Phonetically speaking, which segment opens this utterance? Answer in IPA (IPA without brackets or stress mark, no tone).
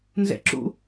n